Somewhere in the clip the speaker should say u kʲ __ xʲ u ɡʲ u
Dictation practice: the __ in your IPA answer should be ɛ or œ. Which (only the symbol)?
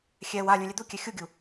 ɛ